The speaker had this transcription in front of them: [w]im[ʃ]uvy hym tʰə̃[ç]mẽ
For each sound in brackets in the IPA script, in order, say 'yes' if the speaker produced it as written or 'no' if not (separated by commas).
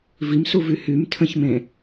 no, no, yes